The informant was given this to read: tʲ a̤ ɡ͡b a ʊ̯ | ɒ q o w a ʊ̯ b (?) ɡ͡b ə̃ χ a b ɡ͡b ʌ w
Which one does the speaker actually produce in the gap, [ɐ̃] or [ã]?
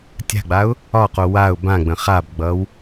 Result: ã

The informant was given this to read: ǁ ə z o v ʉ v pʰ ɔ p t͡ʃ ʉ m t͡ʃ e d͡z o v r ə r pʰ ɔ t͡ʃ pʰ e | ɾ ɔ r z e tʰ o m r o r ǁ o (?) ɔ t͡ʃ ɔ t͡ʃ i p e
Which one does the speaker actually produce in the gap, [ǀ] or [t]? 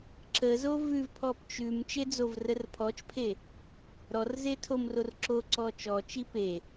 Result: ǀ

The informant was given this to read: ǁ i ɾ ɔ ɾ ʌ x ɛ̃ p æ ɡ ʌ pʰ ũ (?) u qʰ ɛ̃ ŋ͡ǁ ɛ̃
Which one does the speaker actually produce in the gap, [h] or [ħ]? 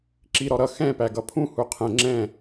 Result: h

